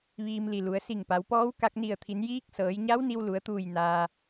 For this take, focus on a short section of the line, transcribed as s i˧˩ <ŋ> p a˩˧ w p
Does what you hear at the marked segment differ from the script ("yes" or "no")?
no